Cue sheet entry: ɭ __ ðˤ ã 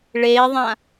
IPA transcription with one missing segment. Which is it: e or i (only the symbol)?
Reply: e